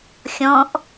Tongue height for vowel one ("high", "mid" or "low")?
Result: mid